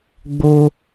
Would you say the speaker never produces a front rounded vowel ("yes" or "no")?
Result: yes